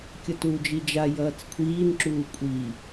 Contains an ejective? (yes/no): yes